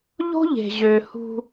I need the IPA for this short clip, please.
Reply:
ʎ o̤˦ ʎ e̤˨ ʑ ø˨ h ṳ˦

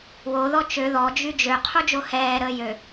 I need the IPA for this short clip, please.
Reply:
w o ð ɔ t͡ʃ ø ð ɔ d͡ʒ y d͡ʒ ø qʰ u d͡ʒ o h ɛː ɾ əː j ø

